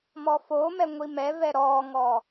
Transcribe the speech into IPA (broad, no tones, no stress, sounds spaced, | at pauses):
m ɔ f o m ɛ ŋʷ i m ɛ v ɛ ɾ ɔ ŋ ɔ